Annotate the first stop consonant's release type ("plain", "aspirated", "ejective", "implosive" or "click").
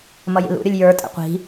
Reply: ejective